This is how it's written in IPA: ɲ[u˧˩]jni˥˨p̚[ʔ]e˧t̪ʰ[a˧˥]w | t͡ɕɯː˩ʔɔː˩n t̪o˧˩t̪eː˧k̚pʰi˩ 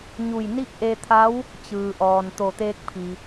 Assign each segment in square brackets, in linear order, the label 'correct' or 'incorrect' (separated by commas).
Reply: correct, correct, correct